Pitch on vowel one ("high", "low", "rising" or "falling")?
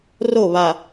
falling